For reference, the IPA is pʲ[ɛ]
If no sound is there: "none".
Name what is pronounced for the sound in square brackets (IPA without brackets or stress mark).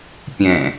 ɛ̃